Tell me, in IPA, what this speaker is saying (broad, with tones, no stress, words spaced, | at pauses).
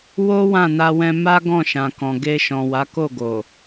wo˦ wã˦˨na˧wɛ̃˧ ma˦ ɡɔ̃˦˨ʃã˨ kɔ̃˨ ɡe˧ ʃɔ̃˨wa˨˦ko˦˨ɡo˨